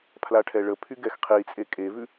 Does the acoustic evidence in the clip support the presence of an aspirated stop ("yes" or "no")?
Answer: yes